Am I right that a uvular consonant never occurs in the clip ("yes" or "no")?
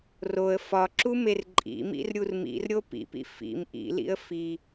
yes